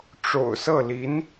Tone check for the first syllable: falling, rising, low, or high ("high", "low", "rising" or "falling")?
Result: low